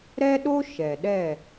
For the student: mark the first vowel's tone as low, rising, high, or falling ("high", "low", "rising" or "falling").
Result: high